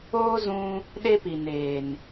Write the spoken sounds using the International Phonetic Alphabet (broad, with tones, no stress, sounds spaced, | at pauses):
oː˦ z ũ˦ | ɗ e˦ p i˨ n eː˨ n